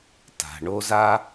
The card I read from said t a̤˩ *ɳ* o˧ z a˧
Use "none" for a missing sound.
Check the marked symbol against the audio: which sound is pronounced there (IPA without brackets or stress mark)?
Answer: ɳ